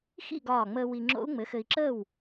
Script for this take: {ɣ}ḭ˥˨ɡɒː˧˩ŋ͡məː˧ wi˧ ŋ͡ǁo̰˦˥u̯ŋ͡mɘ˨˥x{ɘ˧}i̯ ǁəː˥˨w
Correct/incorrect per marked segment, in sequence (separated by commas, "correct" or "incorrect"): incorrect, correct